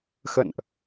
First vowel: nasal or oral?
oral